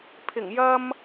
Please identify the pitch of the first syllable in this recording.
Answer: low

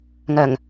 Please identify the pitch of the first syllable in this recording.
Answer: low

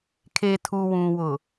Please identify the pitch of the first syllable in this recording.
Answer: low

